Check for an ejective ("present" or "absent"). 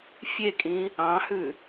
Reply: present